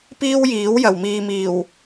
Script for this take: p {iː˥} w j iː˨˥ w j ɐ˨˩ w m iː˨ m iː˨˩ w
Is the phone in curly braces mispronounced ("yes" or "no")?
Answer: no